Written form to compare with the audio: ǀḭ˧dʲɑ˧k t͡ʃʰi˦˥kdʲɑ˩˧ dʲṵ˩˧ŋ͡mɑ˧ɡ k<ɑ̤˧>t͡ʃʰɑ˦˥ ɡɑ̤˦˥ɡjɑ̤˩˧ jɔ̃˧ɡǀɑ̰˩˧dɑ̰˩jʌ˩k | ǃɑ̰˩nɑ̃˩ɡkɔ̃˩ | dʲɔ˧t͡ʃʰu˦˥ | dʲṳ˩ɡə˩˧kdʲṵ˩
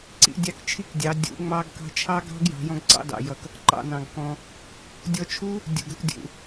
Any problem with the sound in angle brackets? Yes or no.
no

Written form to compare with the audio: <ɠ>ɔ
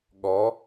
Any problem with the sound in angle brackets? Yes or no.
no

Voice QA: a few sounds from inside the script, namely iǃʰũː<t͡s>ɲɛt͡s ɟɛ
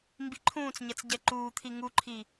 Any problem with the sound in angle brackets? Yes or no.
no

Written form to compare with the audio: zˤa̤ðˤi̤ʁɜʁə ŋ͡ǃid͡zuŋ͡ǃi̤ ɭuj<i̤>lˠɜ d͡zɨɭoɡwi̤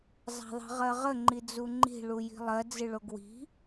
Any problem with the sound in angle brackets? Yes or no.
no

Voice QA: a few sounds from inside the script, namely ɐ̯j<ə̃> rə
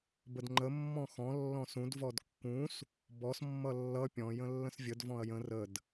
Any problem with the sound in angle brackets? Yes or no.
no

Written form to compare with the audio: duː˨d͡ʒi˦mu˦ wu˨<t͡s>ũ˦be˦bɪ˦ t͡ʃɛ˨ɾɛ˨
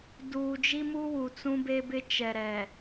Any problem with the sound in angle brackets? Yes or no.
no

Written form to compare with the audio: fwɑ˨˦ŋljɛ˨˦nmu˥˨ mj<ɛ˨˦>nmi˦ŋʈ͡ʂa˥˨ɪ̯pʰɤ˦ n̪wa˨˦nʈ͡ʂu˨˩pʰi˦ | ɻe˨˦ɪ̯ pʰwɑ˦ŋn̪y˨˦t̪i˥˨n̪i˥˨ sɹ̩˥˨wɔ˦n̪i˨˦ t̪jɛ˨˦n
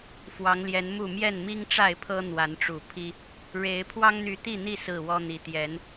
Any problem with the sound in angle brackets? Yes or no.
yes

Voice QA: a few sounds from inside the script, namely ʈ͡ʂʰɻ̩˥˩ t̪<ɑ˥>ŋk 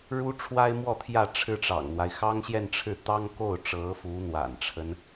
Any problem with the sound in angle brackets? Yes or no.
no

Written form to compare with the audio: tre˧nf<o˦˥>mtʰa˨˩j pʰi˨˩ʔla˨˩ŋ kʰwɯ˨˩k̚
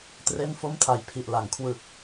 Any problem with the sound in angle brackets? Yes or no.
no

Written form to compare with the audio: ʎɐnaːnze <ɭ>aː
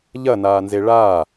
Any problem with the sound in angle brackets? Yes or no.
no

